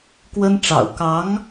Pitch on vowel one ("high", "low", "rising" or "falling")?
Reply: high